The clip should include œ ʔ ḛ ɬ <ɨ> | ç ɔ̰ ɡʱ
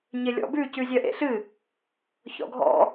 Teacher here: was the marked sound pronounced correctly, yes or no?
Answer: yes